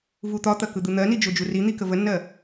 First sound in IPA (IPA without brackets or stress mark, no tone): v